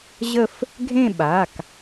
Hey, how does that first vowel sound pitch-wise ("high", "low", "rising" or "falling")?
falling